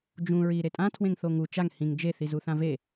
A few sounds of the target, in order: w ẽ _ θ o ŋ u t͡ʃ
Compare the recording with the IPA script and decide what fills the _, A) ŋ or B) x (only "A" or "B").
A